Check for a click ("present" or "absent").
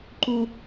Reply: present